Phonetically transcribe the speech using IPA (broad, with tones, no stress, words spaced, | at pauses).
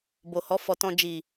bo˨hɔ˨˦ fɔ˧ tɔ̃˦ d͡ʒi˦˨